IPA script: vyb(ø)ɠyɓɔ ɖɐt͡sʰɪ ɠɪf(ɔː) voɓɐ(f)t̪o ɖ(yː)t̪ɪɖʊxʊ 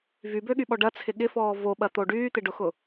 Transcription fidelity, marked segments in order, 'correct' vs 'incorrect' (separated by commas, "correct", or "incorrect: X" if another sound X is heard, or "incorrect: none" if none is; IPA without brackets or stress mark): correct, correct, incorrect: none, correct